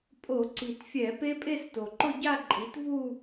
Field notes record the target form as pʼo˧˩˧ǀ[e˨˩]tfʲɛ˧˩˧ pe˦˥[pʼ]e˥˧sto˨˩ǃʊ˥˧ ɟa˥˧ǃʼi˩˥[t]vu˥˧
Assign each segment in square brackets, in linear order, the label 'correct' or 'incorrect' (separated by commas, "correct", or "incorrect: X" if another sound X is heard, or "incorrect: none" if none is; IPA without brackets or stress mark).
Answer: incorrect: i˨˩, correct, correct